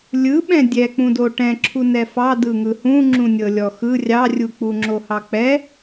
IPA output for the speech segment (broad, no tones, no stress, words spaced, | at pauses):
lʲɯɓɛ̃ dʲɛk͡pũdo ʈɛ̃ǁʰu nɛfɑ dɯŋɯhũ ŋ͡ǁũnʲɤlʲɔxɯ rʲɑrʲuk͡pu ŋ͡ǁohɑk͡pɛ